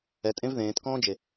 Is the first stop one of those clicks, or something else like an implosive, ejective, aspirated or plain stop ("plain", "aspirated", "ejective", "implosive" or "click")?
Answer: ejective